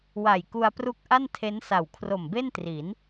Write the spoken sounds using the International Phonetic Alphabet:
w a˨˩ j k u˧ a̯ p r u˦˥ k̚ ʔ a˥˩ n tʰ e˦˥ n s a˨˩ w kʰ r o˨˩ m b e˥˩ n t r i˩˦ n

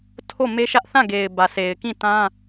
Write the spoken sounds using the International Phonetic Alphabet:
tʰ o˦˨ m e˦ ʃ ä˦ ʔ θ ã˦˨ ɡ e˨ ɪ̯ b ä˨ sʰ e˨ ɪ̯ k ĩ˦˨ t ã˦

